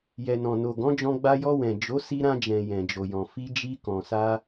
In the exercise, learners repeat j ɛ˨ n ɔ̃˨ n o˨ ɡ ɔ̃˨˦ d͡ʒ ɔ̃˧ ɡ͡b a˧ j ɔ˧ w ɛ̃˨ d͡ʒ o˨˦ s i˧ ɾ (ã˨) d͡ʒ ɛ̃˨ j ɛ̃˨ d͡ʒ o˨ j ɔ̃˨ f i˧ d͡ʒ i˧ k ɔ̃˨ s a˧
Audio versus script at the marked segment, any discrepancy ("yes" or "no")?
yes